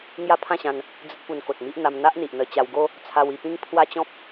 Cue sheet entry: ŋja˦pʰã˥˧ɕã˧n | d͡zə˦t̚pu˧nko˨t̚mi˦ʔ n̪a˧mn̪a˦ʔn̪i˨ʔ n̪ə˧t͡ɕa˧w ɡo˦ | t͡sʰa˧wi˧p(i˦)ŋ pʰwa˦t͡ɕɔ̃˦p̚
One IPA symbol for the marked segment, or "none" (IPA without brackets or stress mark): ĩ˦